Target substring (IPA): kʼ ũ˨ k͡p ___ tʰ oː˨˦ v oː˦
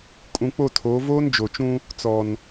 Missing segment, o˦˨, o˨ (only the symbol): o˦˨